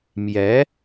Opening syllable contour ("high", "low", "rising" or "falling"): rising